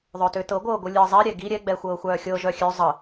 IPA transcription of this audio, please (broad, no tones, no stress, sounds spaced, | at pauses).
ðˤ œ t ø t ɤ ɡʷ ɤː ɡʷ ɯ lʲ ɯː zˤ i ɾʲ ɛ ɡ i ɾʲ ɛ ɡ͡b ɛ xʷ ɤː xʷ œː xʲ ɤ ʒ œ xʲ ø zˤ ə